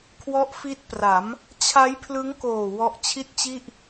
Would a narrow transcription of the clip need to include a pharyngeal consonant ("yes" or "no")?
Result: no